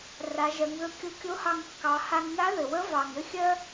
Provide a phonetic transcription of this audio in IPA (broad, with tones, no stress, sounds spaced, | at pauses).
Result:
r a˩˧ ʒ ɜ˩˧ ŋ ð ɵ˧ kʲ o˧˥ kʲ o˧˥ h ɑ˧ ŋ kː ɑ˩˧ h a˧ ŋ n a˧˥ ð ɘ˩ w ə˧˥ v ɑ˩ ŋ ɘ˥ xʲ ɜ˥